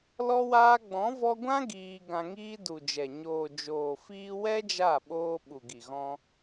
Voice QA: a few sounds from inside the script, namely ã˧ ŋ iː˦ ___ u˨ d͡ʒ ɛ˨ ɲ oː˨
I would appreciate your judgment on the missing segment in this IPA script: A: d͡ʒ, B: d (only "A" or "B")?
B